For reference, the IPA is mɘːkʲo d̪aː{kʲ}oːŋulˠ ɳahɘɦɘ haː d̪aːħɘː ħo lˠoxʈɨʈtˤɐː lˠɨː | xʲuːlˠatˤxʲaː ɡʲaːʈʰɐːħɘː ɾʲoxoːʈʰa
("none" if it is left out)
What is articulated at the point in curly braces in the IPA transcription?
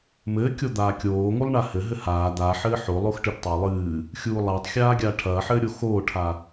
kʲ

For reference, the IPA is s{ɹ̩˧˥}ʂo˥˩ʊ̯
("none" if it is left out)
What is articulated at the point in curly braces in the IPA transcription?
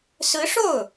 ɹ̩˧˥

